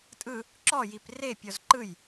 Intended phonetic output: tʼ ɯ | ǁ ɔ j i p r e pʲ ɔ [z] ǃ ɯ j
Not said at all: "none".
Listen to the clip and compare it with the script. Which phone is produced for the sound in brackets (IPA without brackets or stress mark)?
z